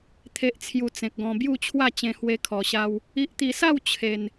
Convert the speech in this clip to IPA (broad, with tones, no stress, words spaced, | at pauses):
t̪ʰe˨ʔt͡sʰju˨˩ t͡sẽ˨k̚ɡɔ̃˧ bju˥˧t͡ɕʰwa˥˧ t͡ɕẽ˧ hwe˦kʰɔ˨˩ɕa˦w | i˨ʔt̪i˨˩sa˥˧w t͡ɕʰe˨˩n